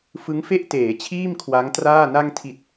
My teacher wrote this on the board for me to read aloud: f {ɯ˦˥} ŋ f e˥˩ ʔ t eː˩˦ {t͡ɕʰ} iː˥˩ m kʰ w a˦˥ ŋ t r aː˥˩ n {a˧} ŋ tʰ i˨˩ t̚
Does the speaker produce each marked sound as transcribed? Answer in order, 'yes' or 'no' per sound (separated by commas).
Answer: yes, yes, yes